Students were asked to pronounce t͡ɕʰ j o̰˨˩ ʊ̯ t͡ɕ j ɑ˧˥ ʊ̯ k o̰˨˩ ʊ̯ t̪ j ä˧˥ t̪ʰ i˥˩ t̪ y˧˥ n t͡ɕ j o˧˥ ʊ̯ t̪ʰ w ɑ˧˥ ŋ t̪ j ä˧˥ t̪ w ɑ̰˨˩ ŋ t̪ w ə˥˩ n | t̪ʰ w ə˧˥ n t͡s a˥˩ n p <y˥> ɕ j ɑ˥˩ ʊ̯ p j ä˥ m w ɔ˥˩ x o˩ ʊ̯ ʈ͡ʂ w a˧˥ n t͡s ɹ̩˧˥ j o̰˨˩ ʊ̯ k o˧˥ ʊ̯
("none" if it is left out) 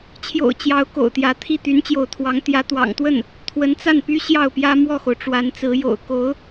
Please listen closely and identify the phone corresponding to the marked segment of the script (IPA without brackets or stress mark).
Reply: y˥